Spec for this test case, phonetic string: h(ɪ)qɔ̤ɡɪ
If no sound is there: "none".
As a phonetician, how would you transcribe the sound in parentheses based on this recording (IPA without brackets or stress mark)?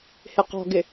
ɪ